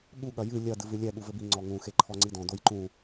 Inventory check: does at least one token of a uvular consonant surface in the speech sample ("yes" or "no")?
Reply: no